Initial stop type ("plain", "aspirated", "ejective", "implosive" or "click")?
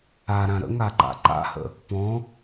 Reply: click